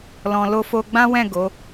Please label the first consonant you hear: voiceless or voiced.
voiced